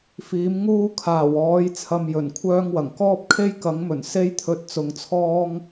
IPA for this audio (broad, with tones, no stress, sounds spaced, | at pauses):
f iː˨˥ m ŋ uː˥ kʰ aː˨˩ w ɔː˨˥ j t͡sʰ ɐ˧ m j ɵ˨˩ n kʷʰ œː˥ ŋ w ɐ˨˩ ŋ k ɔː˥ p̚ kʰ e˥ j k ɐ˨˥ ŋ m ɵ˨˩ n s e˥ j t̪ʰ ɵ˧ t̚ t͡s ʊ˨˧ ŋ t͡sʰ ɔː˥ ŋ